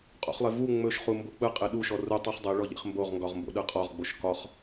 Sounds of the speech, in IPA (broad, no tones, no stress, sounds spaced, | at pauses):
qʼ o̰ χ lˠ e v u ŋ͡m ɵ ʃ χ u m b o k͡p ɯ qʼ e ɗ u ʃ ɔ r u tˤ u χ dˤ e ɭ ɔ ʎ ḛ χ m b o ʁ ŋ ɡ ɒ ʁ m b o̰ ɗ ɯ qʼ ɒ ʁ ɡ͡b o ʃ k ɒ χ